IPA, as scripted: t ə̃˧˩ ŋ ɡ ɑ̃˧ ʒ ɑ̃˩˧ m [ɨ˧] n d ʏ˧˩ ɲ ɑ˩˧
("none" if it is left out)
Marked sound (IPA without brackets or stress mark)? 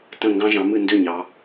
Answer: ɨ˧˩